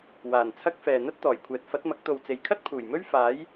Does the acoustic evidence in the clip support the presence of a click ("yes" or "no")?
no